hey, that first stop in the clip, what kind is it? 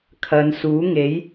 aspirated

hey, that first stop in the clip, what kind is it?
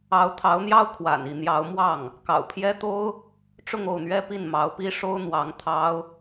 aspirated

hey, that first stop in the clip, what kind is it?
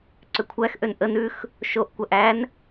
click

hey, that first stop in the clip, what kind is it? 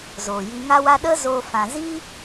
implosive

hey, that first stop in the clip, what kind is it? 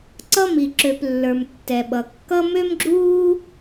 click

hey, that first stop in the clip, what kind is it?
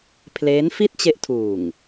aspirated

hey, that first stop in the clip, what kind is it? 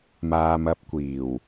plain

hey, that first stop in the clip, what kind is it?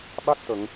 implosive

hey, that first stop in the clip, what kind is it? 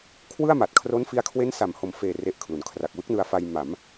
aspirated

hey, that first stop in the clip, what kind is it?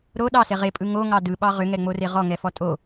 implosive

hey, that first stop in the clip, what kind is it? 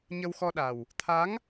implosive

